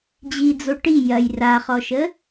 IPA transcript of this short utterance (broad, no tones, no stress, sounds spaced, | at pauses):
d͡ʑ i d͡z o ʈ i j ɐ j r a χ ɔ ʃ ə